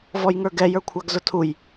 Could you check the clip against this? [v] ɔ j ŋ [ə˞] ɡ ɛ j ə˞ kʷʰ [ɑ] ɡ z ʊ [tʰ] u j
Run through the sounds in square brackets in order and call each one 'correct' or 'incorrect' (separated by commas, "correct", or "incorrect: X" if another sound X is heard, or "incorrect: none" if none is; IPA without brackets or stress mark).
correct, correct, correct, correct